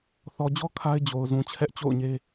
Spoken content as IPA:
θ ɔ˨ d͡ʑ ɔ˦ kʰ a˦ ɪ̯ d͡ʑ o˨ ʊ̯ z ũ˨ t͡ɕʰ ɛ˦ ʔ t͡ɕ o̰˦˨ ʊ̯ ɲ e˦

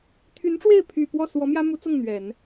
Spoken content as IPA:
t̪ʰ y˧˥ n ʈ͡ʂ w e˥˩ ɪ̯ pʰ y˨˩ p w ɔ˥˩ s w ɔ˧˥ m j ä˥ m u˧˥ t͡s ʊ˥˩ ŋ n̪ ɥ ɛ˨˩˦ n

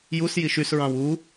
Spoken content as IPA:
j u s j i ʃ y s ɹ ɑ̃ w u

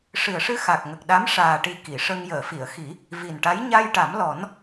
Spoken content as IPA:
ʂ ɨ˨˩ ə̯ ʂ ɨ˧ x a˨˩ k̚ ŋ ə˨˩ k̚ ɗ a˧˥ m ʂ aː˨˩ ʈ i˨˩ k i˨˩˨ ʂ ə˧ ŋ j əː˨˩˨ f i˨˩˨ ə̯ x i˨˩˦ | v i˨˩ n ʈ a˧˥ j ɲ a˧ j ʈ a˨˩˦ m l ɔ˨˩˦ n

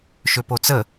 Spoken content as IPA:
ʃ ø p o t͡s ə

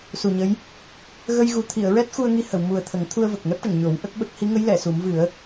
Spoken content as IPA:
s u˨˩ ɲ ə˧˥ j | ɣ ə˧ j ɣ u˨˩ t̪ʰ i˨˩˨ ə̯ ɹ ɛ˦˥ t̚ x u˧ ə̯ ŋ i˧ h ə˨˩˨ w m u˨˩ ə̯ t̪ʰ ə˨˩˦ ŋ t̪ʰ u˧ ə̯ v ə˨˩ k̚ ŋ ɛ˦˥ p̚ ʈ ə˨˩˨ ŋ ɲ o˨˩˦ w ʔ ə˦˥ k̚ ɓ ə˦˥ k̚ h i˧˥ ŋ ə˧˥ j l ɛ˨˩˨ s u˨˩˦ m v ɨ˨˩˦ ə̯

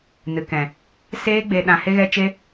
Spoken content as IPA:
n ɨ˨ k ɛ̃˨ | s eː˦ ɡ͡b e˧ ɗ ã˧ h e˦ ɣ ɛ˦ t͡ʃ e˦

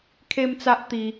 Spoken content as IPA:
kʰ e˦ m t͡s a˦ ʔ t̪ i˧

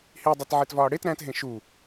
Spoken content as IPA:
h i dˤ e t ʕ e t v ɒː ɽ e t ɾ æ̃ t ɦ ẽ ʃ u

